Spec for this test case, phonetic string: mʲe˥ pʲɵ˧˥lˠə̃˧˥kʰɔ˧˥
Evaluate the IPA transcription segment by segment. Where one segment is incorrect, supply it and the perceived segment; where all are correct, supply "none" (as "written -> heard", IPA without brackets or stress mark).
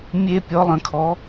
ɵ˧˥ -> ɔ˧˥